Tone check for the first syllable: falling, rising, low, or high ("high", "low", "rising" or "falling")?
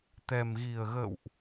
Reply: low